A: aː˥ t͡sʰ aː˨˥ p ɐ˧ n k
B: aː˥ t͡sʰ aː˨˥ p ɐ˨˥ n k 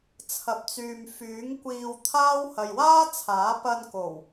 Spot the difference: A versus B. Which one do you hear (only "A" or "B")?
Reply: A